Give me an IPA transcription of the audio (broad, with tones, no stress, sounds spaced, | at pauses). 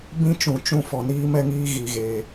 b ĩ˦ t͡ʃ ũ˨ t͡ʃ ũ˦˨ f ɔ˨ n iː˦ m ɛ˦ ŋ iː˦ ɣ i˨ ɣ e˨